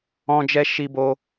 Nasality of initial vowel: nasal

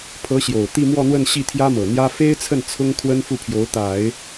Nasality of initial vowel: oral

